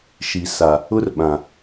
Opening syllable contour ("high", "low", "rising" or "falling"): low